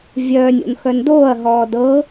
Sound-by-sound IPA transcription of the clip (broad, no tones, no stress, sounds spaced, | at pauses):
vʲ œː nʲ o̰ n x œ n d oː ɐ̯ ɦ ɔː d ɤ